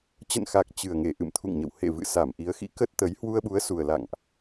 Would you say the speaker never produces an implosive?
no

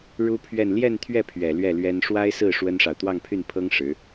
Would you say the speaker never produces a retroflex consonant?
no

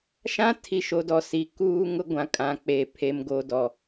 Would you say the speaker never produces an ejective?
no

